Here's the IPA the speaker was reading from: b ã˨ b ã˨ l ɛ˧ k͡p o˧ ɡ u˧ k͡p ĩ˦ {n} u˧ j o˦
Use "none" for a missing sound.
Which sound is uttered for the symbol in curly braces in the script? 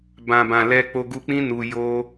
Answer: n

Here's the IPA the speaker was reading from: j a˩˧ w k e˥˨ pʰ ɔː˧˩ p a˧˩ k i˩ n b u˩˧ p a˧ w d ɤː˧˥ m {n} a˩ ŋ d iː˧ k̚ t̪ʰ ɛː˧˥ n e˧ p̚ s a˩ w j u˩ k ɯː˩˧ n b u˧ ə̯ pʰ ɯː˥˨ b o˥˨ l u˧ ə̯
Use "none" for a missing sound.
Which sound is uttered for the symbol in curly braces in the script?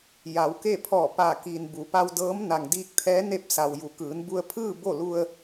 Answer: n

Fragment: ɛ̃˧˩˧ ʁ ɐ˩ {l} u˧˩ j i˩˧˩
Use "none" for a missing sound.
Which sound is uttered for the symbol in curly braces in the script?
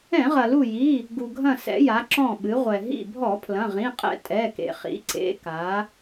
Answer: l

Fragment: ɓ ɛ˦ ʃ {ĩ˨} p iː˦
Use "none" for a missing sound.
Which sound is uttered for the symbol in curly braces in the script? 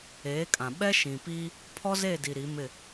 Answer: ĩ˨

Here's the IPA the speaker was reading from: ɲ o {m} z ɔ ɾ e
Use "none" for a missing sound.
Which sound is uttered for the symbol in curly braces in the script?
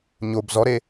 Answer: b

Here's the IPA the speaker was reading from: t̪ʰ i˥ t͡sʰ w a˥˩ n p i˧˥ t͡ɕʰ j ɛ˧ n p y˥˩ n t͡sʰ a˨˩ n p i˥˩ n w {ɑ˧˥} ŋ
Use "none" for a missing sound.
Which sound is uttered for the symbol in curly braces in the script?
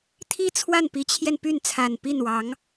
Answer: ɑ˧˥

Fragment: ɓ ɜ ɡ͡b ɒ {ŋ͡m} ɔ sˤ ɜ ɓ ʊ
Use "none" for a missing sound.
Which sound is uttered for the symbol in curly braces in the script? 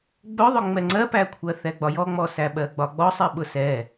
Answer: ɡ͡b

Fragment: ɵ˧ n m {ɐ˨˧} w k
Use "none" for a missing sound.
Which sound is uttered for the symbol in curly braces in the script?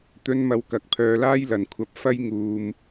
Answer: ɐ˨˧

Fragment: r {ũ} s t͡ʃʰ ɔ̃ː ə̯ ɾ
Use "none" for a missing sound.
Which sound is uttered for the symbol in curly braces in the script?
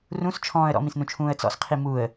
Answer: ũ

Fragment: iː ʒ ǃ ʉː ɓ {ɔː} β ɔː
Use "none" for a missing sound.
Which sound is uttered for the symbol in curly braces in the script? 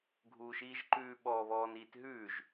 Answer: ɔː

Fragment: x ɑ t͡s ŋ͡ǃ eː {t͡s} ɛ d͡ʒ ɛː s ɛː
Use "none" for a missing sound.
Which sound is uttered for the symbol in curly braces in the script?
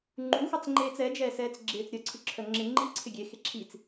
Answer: t͡s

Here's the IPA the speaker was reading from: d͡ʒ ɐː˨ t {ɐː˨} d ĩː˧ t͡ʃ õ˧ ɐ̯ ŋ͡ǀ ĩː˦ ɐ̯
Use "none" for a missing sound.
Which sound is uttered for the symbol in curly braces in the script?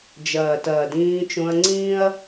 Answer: ɐː˨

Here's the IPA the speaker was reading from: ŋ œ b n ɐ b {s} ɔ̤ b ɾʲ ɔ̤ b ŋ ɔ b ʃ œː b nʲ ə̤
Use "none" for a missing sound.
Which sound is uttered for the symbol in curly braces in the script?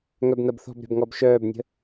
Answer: θ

